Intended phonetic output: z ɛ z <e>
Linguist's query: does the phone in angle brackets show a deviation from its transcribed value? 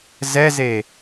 no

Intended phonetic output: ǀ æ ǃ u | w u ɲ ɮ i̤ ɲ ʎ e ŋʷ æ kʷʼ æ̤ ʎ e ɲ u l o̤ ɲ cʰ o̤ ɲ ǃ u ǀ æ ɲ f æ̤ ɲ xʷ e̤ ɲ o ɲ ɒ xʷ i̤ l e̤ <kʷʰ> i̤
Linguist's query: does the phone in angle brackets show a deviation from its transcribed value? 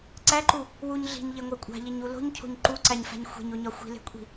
yes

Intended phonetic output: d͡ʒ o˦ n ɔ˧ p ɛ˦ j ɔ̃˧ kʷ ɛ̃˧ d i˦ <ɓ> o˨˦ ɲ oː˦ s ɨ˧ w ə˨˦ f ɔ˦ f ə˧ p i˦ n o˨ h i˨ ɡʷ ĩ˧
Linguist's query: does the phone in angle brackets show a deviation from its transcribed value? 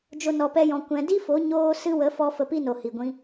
yes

